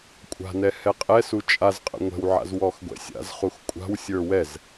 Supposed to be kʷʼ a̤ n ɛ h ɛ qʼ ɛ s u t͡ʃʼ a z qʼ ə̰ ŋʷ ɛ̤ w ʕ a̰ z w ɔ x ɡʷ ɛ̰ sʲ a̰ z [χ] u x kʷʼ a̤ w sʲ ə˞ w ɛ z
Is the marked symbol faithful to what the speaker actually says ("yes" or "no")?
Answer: yes